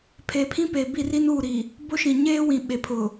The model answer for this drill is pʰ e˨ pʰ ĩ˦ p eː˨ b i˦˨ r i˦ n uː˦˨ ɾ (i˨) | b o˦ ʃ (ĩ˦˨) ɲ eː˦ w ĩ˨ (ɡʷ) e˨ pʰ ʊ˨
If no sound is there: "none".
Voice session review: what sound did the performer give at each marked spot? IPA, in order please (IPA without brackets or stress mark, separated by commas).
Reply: i˨, ĩ˨, ɓ